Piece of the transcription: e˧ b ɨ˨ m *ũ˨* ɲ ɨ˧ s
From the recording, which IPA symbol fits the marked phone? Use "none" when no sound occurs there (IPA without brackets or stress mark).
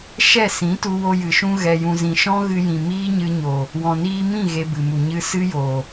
u˨